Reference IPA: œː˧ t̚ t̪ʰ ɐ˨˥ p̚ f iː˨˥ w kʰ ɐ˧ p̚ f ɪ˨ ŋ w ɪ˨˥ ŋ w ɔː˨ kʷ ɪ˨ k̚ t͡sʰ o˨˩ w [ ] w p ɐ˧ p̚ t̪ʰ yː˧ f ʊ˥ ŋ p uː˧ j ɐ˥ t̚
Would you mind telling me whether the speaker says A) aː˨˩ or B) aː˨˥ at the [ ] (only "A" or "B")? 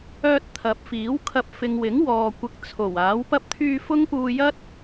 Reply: B